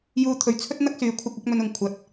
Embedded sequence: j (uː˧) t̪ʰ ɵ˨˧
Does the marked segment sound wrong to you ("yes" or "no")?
no